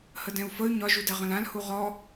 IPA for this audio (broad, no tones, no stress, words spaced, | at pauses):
hədɛ̃u̯fəy̯ ɲɒʒudɛʁə̃l ãlhu ʁɔ